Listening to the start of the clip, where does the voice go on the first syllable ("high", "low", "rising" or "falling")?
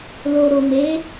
low